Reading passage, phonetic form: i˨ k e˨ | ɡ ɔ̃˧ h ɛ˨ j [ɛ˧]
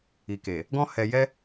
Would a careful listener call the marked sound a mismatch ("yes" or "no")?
no